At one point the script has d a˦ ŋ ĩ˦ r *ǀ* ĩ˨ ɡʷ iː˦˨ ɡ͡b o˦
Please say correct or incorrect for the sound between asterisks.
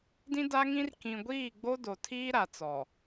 incorrect: k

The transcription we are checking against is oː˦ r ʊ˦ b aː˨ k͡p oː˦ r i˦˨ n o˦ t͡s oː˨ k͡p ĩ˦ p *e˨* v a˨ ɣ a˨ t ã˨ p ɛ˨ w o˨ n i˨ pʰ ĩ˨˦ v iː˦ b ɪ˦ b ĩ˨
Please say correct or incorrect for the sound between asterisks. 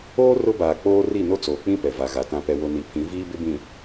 incorrect: ɛ˨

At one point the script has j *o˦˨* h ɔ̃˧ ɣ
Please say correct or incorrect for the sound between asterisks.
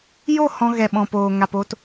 correct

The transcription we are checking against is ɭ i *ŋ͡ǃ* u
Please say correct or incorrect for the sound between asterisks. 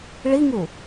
incorrect: ŋ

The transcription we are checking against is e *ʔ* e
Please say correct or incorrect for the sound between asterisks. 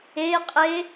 incorrect: qʼ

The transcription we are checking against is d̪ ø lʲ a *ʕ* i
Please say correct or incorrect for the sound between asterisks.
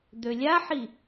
incorrect: ħ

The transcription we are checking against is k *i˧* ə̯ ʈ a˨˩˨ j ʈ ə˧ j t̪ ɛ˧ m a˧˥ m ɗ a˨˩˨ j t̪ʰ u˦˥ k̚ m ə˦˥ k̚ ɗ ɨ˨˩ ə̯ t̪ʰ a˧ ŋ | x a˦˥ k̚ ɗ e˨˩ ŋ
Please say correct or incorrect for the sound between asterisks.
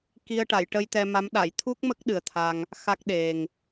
correct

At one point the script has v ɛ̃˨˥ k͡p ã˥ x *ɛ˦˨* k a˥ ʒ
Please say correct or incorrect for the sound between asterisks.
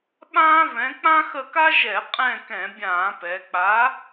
incorrect: ə˦˨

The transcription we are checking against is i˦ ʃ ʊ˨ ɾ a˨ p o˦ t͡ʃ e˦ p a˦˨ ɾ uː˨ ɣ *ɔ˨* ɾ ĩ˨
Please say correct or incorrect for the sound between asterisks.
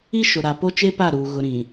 incorrect: ʊ˨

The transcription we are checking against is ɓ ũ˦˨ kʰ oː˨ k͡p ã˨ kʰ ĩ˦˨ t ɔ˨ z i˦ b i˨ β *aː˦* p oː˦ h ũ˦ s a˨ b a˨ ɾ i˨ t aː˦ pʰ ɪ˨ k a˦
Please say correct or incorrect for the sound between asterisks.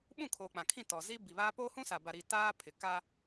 correct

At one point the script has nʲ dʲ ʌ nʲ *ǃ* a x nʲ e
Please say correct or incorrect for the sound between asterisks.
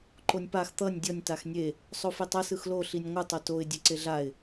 incorrect: t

